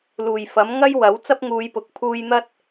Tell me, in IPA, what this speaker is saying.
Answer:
l uː˨˩ j f ɐ˨˥ m ŋ ɐ˥ j w ɐ˨˥ w t͡s ɐ˥ p̚ ŋ uː˨˧ j p ʊ˨˥ k̚ pʰ uː˧ j n̪ ɐ˥ t̚

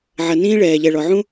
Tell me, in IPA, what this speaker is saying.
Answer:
ʕ ɐ˨ n ĩː˦ ɭ ɛː˨ ʎ ɛ˨ ɭ ɔ˨ ʕ ũ˦

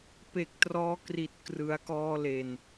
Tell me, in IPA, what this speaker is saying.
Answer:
p e˨˩ k̚ t r ɔː˦˥ k r i˨˩ t̚ k r ɯ˩˦ a̯ k ɔː˧ l e˨˩ n

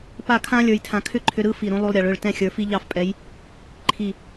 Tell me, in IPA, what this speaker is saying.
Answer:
p a˥˧ kʰ ã˥ lʲ ə˞˧ j tʰ ã˧ kʰ ʏ˥˧ ǃʰ ʏ˧ ɾ ɯ˥ f i˧˩ ɾ ũ˧ lˠ u˧ lˠ ɾʲ ɑ˩˧ ɭ ʏ˧˩ ɭ t ɛ̃˧˩ xʲ ə˞˩˧ f i˧ ʎ ɑ˧˩ f pʼ ɛ˩˧ j | ǃʰ i˧˩

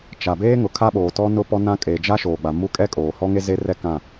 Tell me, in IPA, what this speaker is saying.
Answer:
t͡ʃ a˨ b eː˦ ŋ ʊ˨ kʰ a˦ ɓ oː˨ t ɔ˦ n ʊ˦ p ɔ˦ n ã˦ kʼ e˨ d͡ʒ a˦ ʃ oː˨ ɡ͡b a˨ m u˦ kʼ ɛ˦ kʼ oː˨ h ɔ˦ ŋ e˦ z e˦ r ɛ˦ k ã˦˨

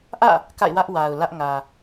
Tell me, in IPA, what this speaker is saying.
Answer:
ʔ ä̰˦˨ | k a̰˦˨ ɪ̯ w ä˦ ʔ w a˨ ʊ̯ l ä˦ ʔ ŋ ä˨

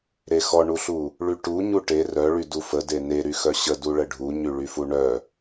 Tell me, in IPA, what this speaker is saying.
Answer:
ɾ e x ɔ ɳ u ɬ u | ɭ y ʈ u ɲ u ʈ e r œ ɭ y d u f ə d e n e ɾ y x œ ɕ ə d u ɭ ə ɖʱ u ɲ y ɭ y f u ɳ œ

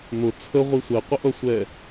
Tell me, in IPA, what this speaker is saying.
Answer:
n̪ ʊ t͡sʰ ə ʁʷ i sʷ ɛ qʷ ə ʔ ʌ sʷ ɛ

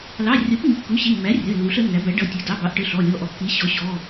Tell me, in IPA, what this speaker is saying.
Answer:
l ɑ˩˧˩ rʲ ʌ˩˥ p m i˩˧˩ kː u˩˥ ɕ i˩˧˩ mː æ˩˥ rʲ ʌ˩˧˩ lː u˩˥ ɬ ə˩˥ nː æ˩˥ b æ˩˥ ɖ ʌ˩˧˩ tʲ ʌ˩˥ d ɑ˩˧˩ b ɑ˩˥ ʔ ʈ ə˩˧˩ ɬ ɔ˩˧˩ lʲ ɔ˩˧˩ ʔ ɔ˩˥ kː i˩˥ ɕ ɔ˩˥ ɕ ɔ˩˧˩

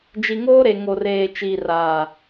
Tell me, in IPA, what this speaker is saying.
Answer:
d͡ʒ i˨ ŋ oː˦ ɾ e˨ ŋ o˨ r eː˨ t͡ʃ iː˨ r aː˨

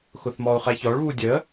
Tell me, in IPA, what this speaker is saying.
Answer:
x ʊ θ m ɔ u̯ χ ɛ ç ɔ ɭ β u dʲ ə

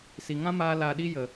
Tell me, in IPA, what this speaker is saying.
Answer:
s i˨ ŋ ã˦ m aː˧ l a˨ ɗ i˧ j ə˨

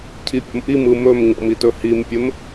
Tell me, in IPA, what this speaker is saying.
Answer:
cʰ i pʲ ɔ̰ m ʔ i m ɯ m ɵ m ɲ ɔ̰ m i t ɵ h i m pʲ ɘ m

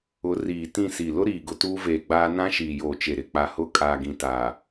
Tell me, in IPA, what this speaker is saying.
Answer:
ʊ˨˦ r iː˨ t ĩ˦˨ s i˨ l ʊ˦ ɾ iː˨ ɡ ʊ˨ t uː˦ v eː˨ ɡ͡b aː˦ n ã˦ ʃ iː˨ j oː˨ t͡ʃ e˨ ɾ ɪ˨ k͡p a˨ h ʊ˦˨ kʼ aː˨ ɡ ĩ˨ t aː˨

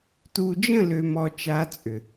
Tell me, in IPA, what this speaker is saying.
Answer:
t u˨ d͡ʒ ə̃˦˨ l ø˨ m ɔ˨ t͡ʃ a˦ t͡sʼ ʏ˨

